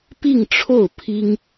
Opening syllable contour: falling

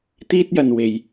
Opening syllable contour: high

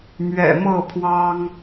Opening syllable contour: low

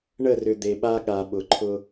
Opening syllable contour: falling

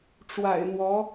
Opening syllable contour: low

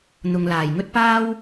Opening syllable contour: low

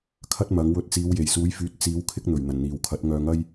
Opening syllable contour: high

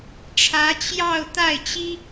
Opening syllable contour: rising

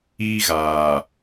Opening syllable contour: high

